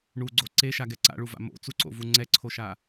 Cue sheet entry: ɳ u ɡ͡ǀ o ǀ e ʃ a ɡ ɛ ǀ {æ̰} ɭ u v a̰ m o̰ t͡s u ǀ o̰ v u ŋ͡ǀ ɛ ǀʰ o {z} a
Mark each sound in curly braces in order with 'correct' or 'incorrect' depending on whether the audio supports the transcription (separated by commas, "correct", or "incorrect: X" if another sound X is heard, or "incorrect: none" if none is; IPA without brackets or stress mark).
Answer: incorrect: a̰, incorrect: ʃ